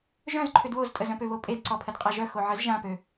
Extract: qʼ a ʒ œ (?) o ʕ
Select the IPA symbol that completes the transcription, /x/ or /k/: x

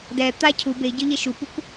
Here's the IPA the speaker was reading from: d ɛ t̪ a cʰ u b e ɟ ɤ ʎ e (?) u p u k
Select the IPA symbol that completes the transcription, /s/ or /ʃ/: ʃ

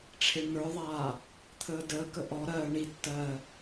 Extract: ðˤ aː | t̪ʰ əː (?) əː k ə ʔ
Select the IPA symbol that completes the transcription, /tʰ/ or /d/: d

